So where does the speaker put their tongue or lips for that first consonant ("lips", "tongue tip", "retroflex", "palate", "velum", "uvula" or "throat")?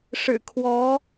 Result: retroflex